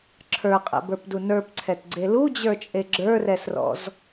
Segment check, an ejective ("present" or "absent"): present